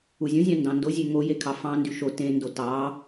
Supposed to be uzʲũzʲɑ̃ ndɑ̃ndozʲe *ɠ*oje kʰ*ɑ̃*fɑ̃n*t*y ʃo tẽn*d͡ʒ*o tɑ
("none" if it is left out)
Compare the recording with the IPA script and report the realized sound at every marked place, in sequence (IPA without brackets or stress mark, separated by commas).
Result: ŋ, ɑ, d, d